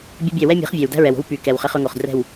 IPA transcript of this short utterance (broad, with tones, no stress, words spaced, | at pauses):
bʲɛ˦bʲæ˦˨ wɛ˦ mʲɛ̤˨˦χvʲæ˨w dæ̤˦ɹɛ˨wo̤˦w py˨kɛ˨w χɛ˦χɵ˦ŋo˨χ drɛ̤˦˨w